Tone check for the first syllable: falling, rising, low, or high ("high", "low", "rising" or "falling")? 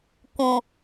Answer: low